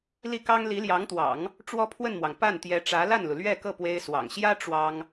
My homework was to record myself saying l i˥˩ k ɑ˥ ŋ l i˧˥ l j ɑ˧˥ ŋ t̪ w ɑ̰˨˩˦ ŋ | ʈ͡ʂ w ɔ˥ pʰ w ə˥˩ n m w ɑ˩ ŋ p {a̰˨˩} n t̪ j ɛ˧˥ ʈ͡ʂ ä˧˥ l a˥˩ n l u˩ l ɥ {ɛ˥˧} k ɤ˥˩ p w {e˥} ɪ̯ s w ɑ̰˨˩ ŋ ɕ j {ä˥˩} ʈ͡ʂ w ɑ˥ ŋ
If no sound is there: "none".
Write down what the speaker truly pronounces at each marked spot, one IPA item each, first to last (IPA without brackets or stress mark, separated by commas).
a˥˩, ɛ˥˧, e˥, ä˥